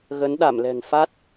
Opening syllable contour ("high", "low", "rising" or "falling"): rising